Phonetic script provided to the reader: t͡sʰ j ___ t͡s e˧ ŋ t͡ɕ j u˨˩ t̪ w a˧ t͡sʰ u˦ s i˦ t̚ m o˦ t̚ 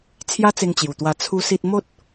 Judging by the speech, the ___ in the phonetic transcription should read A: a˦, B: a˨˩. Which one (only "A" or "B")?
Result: A